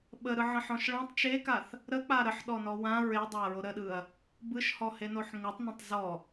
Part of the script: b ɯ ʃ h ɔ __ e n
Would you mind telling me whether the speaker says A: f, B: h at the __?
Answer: B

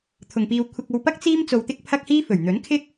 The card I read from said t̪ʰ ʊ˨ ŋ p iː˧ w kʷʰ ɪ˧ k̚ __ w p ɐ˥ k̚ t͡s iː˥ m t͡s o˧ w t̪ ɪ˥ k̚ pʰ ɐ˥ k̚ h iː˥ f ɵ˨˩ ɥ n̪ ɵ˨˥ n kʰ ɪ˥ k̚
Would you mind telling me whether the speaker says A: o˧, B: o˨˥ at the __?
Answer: A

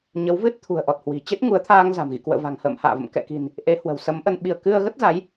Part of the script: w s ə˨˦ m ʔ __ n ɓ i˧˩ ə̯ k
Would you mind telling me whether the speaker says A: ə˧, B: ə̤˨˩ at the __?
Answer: A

